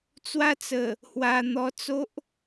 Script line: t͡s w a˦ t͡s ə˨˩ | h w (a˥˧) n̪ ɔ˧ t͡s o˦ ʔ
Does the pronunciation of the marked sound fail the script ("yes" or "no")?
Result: yes